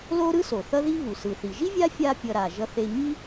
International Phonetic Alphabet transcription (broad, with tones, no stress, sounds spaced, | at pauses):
l o˥ ɾ ɯ˥ s o˩ θ ʌ˥ ð i˥ β u˩ s ɯ˩ θ i˩ ʒ i˥ vʲ a˥ fʲ a˦ pʲ ʌ˨ ɾ a˩ ʒ ʌ˦ θ e˦ ɲ i˦